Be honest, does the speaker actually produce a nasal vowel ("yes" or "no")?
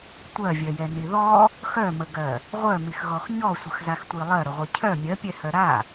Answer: no